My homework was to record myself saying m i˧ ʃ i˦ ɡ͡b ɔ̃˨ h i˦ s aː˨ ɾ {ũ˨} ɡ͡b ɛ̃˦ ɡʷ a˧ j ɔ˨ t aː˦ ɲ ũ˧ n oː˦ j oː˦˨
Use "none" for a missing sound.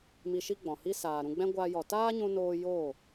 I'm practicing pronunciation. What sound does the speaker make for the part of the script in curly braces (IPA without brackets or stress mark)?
ũ˧